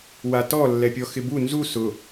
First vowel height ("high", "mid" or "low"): low